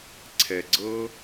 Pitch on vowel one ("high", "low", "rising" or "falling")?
low